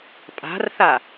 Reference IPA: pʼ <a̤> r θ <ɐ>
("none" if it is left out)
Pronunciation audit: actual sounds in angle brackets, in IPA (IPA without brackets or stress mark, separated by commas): a̤, a